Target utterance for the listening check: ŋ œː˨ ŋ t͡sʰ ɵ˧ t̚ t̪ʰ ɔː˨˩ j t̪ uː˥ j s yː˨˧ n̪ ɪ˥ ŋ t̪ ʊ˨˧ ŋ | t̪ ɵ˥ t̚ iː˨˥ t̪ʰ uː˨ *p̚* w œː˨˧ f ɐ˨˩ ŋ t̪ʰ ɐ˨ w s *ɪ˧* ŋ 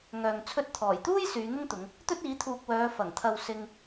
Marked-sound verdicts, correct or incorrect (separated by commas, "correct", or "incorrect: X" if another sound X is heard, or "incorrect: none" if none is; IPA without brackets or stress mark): incorrect: k̚, correct